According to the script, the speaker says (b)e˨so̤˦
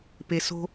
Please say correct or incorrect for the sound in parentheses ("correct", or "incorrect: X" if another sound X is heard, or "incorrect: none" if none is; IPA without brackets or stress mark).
incorrect: p